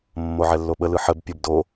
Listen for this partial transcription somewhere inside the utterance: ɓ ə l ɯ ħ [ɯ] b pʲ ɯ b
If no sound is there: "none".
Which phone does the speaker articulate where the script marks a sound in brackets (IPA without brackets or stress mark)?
ə